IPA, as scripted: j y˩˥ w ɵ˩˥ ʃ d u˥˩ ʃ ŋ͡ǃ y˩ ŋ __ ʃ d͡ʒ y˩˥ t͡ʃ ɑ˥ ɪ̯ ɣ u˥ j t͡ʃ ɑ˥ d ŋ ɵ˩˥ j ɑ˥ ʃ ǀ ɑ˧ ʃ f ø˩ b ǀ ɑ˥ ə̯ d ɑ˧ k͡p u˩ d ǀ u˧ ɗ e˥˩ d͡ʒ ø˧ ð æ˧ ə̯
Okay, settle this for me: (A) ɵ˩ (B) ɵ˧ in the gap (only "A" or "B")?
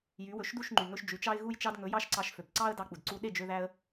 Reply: B